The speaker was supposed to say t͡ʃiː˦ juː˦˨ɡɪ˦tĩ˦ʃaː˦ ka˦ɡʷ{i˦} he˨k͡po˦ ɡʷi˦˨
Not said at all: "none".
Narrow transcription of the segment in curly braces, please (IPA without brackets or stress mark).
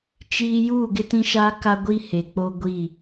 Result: i˦